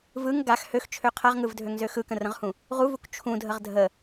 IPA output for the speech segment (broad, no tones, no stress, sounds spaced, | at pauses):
v ɯ ŋ ɡ a x h ø x t͡ʃʰ ø qʰ a ʁ ŋ ɯ v dʱ ø ŋ z ø x ɯ k ə̃ r ə̃ ʁ h ũ | ʁ u v u k t͡ʃʰ ũ dʱ ə ʁ dʱ ə